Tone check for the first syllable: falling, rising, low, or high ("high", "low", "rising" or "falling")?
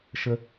high